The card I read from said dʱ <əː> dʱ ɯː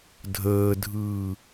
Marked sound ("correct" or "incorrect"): correct